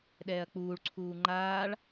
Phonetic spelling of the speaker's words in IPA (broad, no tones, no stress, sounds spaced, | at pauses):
ɗ ɛː ɐ̯ k͡p uː ɭ ǀʰ uː ŋ͡ǃ aː ɭ